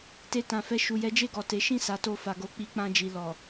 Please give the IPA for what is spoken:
te˧tã˨fɛ˧ ʃu˨jɛ˨˦d͡ʒe˦˨ɡɔ˨ te˨˦ʃĩ˦˨ sa˨˦to˧fa˨ɡo˧ k͡pi˧k͡pã˧ d͡ʒi˨ lɔ˨

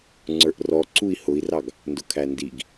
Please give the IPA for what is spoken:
ŋ͡ǀə˞ʔrɔ ǀui̯hʊi̯rɑɡ | ndʊkʰændiɡ

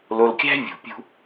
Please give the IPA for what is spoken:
lo˨lkʲæ̤˦ vʲṳ˨pʲṳ˦

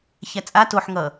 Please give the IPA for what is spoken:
çæt͡sʼa toħ ŋʌ

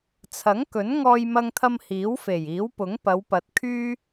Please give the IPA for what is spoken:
t͡sʰɐ˨˥ŋkɵ˨˥n ŋɔː˧jmɐ˧ŋt̪ʰɐ˧m hiː˨˥wfe˨˩jiː˨˥wpʊ˨˥ŋ pɐ˨˧wpɐ˨t̚kʰyː˥

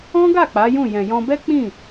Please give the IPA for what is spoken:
ɔ̃˦ɡa˦˨ k͡pa˨˦jũ˦˨ jɛ̃˨jɔ̃˧bɛ˦ k͡pĩ˦˨

